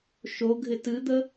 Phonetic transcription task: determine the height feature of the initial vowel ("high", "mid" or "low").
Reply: mid